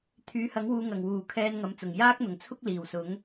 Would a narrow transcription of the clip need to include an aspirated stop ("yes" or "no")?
yes